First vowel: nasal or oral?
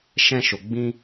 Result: nasal